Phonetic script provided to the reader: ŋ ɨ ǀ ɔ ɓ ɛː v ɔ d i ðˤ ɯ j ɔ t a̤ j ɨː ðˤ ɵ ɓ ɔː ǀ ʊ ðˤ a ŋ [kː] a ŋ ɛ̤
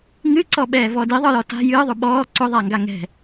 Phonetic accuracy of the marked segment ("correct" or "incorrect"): incorrect